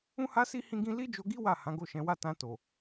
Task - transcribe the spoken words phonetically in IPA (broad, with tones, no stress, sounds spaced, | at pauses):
ũ˦ h a˦ s i˦ h ĩ˦ ɡ ĩ˦ l i˦ d͡ʒ o˧ ɡ i˦ w a˦˨ h ã˨˦ ɡ o˦˨ ʃ ɛ̃˨˦ w a˦ t ã˧ t o˨